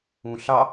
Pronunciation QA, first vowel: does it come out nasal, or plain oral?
nasal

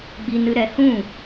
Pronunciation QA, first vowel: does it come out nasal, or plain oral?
oral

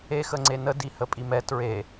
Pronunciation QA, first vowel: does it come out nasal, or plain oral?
oral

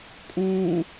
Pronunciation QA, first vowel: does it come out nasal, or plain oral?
nasal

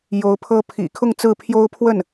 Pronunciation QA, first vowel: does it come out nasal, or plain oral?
oral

